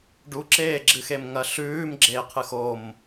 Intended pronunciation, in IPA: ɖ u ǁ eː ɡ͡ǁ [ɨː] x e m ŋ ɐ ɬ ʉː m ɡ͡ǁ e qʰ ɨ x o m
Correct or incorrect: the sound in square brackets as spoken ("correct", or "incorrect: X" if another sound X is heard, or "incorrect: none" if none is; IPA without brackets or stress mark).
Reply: incorrect: ɨ